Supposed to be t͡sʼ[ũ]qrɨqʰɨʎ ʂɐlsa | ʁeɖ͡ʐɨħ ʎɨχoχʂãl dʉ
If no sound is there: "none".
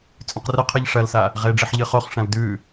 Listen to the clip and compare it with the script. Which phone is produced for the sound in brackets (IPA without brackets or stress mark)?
ũ